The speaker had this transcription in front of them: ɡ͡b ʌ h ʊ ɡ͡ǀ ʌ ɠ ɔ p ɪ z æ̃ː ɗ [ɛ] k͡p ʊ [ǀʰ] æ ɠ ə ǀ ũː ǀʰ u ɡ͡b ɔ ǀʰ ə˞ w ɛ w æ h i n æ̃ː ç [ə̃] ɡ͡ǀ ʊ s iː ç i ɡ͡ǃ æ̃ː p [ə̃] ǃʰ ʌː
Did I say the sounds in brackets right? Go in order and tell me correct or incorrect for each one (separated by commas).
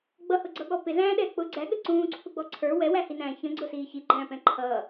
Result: incorrect, incorrect, correct, incorrect